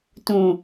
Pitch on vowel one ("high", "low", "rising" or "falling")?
low